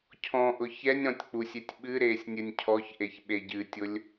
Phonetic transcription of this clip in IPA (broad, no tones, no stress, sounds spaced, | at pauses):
cʰ ɔ̃ ʔ ʊ ç ɛ nʲ ɾ ɔ̃ tʲ k͡p u sʲ e tʲ ɓ ɨ ɾ eː sʲ nʲ ɨ nʲ cʰ ɔ ç ʔ e ç ɓ e ɟ ɨ tʲ ʊ lʲ